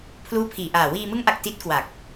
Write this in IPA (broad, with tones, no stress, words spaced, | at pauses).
pʰluː˦˥pʰiː˨˩ ʔaː˨˩ wiː˧mɯ˦˥ŋʔa˨˩k̚ ti˦˥t̚kwa˨˩k̚